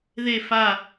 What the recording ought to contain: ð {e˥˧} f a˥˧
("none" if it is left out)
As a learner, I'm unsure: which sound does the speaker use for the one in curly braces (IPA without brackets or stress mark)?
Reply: e˥˧